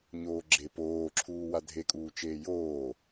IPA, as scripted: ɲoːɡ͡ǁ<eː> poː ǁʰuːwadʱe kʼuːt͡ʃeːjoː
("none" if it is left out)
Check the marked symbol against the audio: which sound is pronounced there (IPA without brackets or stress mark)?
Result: e